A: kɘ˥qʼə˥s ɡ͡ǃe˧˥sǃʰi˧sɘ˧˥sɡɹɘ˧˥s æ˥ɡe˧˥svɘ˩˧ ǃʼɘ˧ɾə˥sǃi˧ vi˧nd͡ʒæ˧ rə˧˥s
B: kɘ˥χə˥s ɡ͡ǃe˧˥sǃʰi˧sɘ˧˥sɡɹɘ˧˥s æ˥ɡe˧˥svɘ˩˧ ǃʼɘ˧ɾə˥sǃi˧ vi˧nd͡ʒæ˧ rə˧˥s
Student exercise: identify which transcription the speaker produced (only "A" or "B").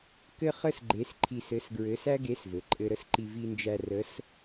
B